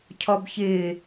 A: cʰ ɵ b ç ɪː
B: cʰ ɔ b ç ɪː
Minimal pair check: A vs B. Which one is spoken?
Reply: B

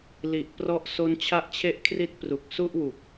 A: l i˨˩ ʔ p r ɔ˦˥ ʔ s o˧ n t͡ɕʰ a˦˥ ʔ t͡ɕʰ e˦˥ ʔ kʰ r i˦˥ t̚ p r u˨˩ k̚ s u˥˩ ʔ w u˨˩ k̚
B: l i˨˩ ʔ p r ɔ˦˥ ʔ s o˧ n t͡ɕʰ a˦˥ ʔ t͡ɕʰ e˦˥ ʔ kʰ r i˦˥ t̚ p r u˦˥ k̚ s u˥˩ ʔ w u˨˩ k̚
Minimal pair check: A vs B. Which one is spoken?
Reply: A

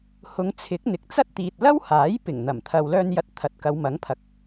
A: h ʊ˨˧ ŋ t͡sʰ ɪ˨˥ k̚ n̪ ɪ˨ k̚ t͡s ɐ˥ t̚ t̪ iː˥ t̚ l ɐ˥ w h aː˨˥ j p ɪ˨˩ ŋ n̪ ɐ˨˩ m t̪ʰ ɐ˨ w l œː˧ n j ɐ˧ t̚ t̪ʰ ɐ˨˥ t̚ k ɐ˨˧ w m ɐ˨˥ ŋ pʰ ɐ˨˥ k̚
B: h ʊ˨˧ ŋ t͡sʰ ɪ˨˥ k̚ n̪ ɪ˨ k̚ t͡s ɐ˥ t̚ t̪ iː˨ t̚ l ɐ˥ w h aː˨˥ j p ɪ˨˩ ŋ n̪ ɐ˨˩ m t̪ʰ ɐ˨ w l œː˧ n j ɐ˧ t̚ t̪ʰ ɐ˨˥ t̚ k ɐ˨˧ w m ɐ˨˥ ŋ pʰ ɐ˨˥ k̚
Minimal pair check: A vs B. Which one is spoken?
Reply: B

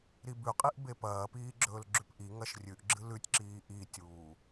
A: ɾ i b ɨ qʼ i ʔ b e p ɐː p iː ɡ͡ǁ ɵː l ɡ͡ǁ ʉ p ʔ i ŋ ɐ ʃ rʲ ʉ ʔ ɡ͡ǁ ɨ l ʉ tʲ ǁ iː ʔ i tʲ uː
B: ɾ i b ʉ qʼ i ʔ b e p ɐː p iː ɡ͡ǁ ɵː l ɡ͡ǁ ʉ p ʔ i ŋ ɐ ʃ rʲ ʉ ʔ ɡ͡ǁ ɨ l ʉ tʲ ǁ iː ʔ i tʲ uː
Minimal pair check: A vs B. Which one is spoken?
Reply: B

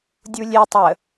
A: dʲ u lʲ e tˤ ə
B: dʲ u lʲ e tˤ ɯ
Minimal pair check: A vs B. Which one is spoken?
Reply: A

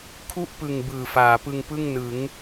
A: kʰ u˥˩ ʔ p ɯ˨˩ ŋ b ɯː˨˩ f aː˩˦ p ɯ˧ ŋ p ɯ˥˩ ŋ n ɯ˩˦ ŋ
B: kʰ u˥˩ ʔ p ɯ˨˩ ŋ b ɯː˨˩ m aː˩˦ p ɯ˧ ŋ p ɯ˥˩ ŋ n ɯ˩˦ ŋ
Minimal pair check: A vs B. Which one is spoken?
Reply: A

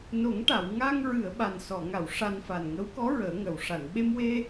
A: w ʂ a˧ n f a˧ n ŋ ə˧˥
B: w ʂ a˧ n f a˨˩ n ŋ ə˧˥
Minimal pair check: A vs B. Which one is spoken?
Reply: B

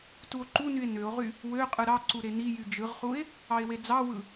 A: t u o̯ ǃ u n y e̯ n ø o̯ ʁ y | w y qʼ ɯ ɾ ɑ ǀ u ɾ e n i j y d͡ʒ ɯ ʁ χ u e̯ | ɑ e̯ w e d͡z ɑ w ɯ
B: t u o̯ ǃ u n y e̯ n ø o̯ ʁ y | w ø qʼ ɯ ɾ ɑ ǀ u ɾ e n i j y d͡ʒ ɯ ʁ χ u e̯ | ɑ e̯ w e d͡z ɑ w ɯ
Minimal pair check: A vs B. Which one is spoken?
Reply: B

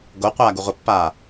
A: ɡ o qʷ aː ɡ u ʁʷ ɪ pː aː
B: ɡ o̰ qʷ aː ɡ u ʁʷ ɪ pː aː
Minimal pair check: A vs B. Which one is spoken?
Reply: A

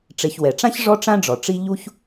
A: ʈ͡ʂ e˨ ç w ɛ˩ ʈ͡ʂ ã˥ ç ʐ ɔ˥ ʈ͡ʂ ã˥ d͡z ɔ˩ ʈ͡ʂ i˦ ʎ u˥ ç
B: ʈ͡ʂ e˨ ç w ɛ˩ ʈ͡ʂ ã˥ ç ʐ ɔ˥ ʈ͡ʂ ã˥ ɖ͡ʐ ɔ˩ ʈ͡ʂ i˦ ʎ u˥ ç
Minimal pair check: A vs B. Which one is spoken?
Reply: B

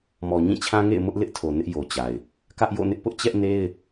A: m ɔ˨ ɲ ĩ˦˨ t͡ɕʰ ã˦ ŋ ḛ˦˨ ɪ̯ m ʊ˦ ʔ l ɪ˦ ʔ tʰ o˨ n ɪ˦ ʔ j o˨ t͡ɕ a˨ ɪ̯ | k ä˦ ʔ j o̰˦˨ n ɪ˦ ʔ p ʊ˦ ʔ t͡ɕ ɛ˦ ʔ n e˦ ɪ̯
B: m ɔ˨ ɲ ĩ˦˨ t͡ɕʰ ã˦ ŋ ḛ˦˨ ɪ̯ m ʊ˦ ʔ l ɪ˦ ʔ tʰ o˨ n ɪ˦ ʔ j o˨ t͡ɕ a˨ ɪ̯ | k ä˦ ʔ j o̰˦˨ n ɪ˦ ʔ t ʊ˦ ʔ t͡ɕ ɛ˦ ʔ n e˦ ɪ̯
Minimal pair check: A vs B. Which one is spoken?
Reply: A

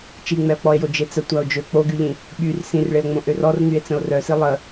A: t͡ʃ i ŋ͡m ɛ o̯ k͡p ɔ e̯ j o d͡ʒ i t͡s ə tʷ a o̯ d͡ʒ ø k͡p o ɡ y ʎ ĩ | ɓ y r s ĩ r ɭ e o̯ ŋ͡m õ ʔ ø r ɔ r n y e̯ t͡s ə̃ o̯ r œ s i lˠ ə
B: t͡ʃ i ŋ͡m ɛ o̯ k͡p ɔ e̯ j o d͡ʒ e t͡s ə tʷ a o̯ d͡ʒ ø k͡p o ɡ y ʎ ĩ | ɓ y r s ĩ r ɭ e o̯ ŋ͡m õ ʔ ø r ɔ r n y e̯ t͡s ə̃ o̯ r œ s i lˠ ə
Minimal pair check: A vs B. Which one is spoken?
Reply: B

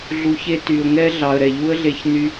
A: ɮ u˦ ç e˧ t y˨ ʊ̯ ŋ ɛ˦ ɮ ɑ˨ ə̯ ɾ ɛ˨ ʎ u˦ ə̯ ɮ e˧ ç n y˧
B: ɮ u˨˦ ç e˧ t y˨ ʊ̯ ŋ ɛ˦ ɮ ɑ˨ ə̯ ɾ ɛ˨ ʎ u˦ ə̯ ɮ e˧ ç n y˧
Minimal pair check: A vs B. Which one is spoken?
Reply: B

